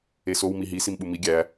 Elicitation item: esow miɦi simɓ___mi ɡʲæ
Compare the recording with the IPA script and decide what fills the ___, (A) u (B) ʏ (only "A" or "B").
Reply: A